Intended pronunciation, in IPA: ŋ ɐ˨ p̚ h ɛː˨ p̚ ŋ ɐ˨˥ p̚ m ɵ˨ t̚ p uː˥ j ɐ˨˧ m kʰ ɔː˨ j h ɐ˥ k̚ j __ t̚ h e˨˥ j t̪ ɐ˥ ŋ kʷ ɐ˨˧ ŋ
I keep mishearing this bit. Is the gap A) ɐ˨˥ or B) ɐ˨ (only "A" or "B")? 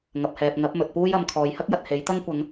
B